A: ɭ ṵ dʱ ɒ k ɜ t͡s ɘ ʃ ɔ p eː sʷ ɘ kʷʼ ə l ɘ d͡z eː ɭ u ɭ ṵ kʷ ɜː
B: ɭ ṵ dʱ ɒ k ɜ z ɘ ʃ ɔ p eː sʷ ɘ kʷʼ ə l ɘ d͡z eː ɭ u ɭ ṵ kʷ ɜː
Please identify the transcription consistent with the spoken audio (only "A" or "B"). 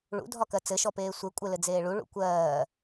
A